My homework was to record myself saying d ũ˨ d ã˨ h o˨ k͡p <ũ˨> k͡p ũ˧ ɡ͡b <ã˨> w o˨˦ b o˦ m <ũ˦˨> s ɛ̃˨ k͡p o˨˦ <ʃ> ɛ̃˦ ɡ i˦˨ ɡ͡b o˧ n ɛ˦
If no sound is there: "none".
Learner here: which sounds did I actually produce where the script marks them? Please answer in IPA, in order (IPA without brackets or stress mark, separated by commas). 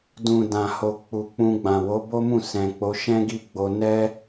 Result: u˨, ã˨, ũ˦˨, ʃ